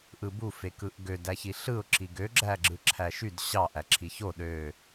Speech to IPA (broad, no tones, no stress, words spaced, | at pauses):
ʔɯbufekɯʔ ɡødæçi ɬɯʊ̯ǁi ɡøɡ͡ǁæɡ͡ǁɯ ǁʰæʃyd ɕɑ ʔæǁʰiço ɗø